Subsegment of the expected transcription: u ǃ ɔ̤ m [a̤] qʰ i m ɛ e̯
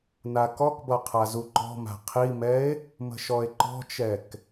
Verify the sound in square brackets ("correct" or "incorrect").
correct